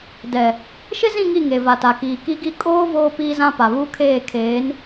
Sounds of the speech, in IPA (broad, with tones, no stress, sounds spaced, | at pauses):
d ɛ˨ | ʃ ɪ˦ z ĩ˦˨ ŋ i˦˨ ŋ e˨ v a˨ t a˨ k iː˨ k i˦ ɡ i˦ kʼ oː˦ v oː˦ p iː˦ z ã˦ p a˨ β u˦ kʰ eː˦˨ kʰ eː˨˦ n